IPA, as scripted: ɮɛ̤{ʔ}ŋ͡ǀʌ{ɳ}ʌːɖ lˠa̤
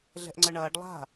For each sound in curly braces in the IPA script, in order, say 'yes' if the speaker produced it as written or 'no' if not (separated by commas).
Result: yes, yes